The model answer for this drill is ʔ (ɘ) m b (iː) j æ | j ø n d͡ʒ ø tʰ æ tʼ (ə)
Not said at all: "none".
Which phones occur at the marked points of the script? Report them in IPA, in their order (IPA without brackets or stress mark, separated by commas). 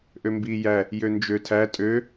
ø, iː, ø